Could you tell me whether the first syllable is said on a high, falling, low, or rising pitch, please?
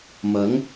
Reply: rising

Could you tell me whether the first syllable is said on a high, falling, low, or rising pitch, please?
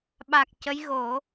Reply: low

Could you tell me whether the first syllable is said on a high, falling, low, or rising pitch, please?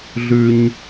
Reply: high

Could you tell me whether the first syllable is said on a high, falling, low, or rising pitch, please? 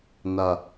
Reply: low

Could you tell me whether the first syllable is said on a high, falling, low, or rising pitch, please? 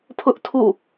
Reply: high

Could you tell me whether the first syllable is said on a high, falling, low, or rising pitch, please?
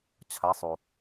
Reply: rising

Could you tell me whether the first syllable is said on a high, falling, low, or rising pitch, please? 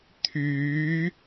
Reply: rising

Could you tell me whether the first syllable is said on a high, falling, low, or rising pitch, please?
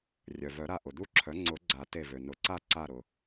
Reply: low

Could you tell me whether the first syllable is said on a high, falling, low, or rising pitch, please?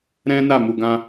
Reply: high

